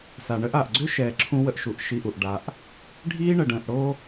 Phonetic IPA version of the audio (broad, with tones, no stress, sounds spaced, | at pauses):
s a˨ ɳ ə˦ ʔ a˨ ʔ ɡ͡ǀ ʏ˦ ʃ ɛː˨ ǁʰ ũ˧ w ə˧ ʔ ʃ u˨ ʔ ʃ i˧ ʔ u˨ ʔ ɖ a˧ ʔ | ɖʱ iː˦ ɳ ə˨ ɖ ə̃ː˨ ʔ ɽ o˦